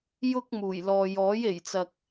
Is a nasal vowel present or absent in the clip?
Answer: absent